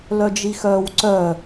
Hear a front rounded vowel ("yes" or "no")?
yes